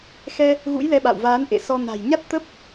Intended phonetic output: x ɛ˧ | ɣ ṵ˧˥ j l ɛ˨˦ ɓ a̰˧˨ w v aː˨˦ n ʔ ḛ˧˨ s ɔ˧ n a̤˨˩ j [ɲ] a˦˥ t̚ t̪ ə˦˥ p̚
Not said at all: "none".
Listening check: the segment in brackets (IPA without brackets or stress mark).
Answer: ɲ